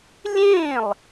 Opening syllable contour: falling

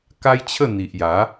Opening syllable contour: high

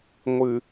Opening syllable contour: low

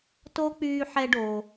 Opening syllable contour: high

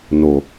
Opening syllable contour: low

